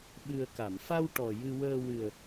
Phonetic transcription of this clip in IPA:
ɓ ɨ˨˩ ə̯ k a˨˩˨ m f a˧ w ʈ ɔ˨˩ j ɨ˧ w əː˧ w ɨ˨˩ ə̯

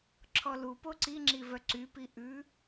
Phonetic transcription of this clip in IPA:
ǁʰ ɔ l u p o ǀ i ŋ͡ǁ i v œ ǀ y p i ʔ ʉ

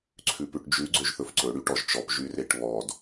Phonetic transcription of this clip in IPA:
ǀʰ ʉ p ʉ ʈ d͡ʒ ʉ ɡ͡ǀ ø ʒ θ ɵ f ǀ ɵ ɽ y ʈ ɔ ʒ t͡ʃ ɔ p ʒ y r e ʈ β ɔ d

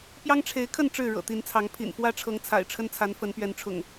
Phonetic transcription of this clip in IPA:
p j ɑ˦ ŋ ʈ͡ʂʰ e˨˦ ɪ̯ kʰ ə˥˨ n ʈ͡ʂ ɻ̩˥˨ ɻ ɤ̰˨˩ t̪ i˨˦ n t͡sʰ ɑ˨˦ ŋ pʰ ḭ˨˩ n f w ä˦ ʈ͡ʂʰ ɤ˨˦ ŋ t͡sʰ a̰˨˩ ɪ̯ ʈ͡ʂʰ ə˦ n t͡sʰ a˨˦ n f ə˨˦ n p ɥ ɛ˨˦ n ʈ͡ʂʰ ʊ̰˨˩ ŋ

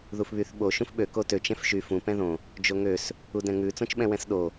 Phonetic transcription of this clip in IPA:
ð u f β y θ ɓ o ʃ ũ f ɓ ø k o t ø t͡ʃ ɛ̃ f ʃ y f ũ p ɛ̃ ð õ | d͡ʒ o ŋ ø s | u d ɛ̃ ŋ ʉ t͡s õ t͡ʃ ɓ ɛ̃ w ɛ̃ s ɗ o

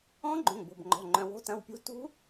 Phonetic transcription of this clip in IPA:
ɔ̃˦˥ ɡ͡ǃ õ˩˧˩ ŋ b o̤˩˧˩ b ŋ͡ǃ ɔ̤˩˧˩ ŋ͡ǃ œ̃˩˧˩ w o̤˦˥ t ɐ̃˩˧˩ w pʲ ṳ˦˥ t ṳ˦˥

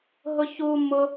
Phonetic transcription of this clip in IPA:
ɦ ʊ ç u m ʊ

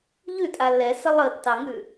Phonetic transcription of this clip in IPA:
ʎ ʉ tʼ a l ɛ s ə lˠ ə tː ɑ ŋ ʉ

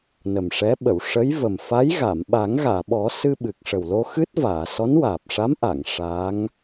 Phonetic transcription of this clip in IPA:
n ə˨˩ m ʂ ɛ˧˥ ɓ ə˨˩˨ w ʂ ə˧˥ j v ə˨˩ m f a˧˥ j ɣ a˨˩˨ m ɓ a˨˩˦ ŋ ɣ aː˨˩˨ ɓ ɔ˨˩˦ s ɨ˧ ɓ ɨ˨˩ k̚ ʂ ə˨˩ w l o˧ x ɨ˦˥ t̚ v aː˨˩˨ s ɔ˧˥ n w aː˨˩ p̚ ʂ a˧˥ m ʔ a˨˩˨ ŋ ʂ a˧˥ ŋ

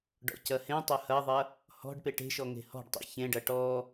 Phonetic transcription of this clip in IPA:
ɖ ɔ̰ c ɐ h ẽ tˤ ɐ h ɐ ðˤ ɐ | h ɔ̤ ɖ p e ʈ e̤ ʃ ɔ ŋ e̤ h ɔ̤ ɖ tˤ ḭ ç ẽ ɖ ɐ ʈ ɔ

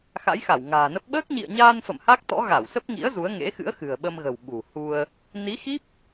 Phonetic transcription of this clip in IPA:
x a̰˧˥ j x a˧˩ w ŋ a̤ː˨˩ n ə˦˥ p̚ ɓ əː˦˥ k̚ ɲ ḭ˧˨ ə̯ ɲ aː˧ n f ə̰˧˨ m h a˦˥ k̚ t̪ ɔ̰˧˥ ɣ a˧˩ w s ə˦˥ p̚ ŋ ḭ˧˥ ə̯ z u˨˦ ə̯ ŋ ḛ˧˥ x ɨ̰˧˥ ə̯ x ɨ̤˨˩ ə̯ ɓ ə˧ m ɣ ə̤˨˩ w ɓ ṳ˨˩ h u˧ ə̯ | n i˨˦ x i˦˥ p̚

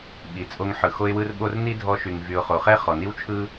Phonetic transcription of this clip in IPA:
ɓ i˨ t͡sʼ o˧ ŋ ħ ɯ˨ x o˧ ɪ̯ w ɯ˧ r ɓ o˧ r n i˦ dʱ ɔ˧ ʃ y˨ ŋ v y˨ ʊ̯ χ o˨ χ ɛ˦ χ ɔ˨ n i˦ w t͡ʃʰ ɯ˦

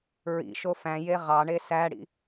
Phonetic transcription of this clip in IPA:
ɹ ḭ ʃ o f æ̃ j e ʁ ɑ ɳ e s æ ɽ ḭ

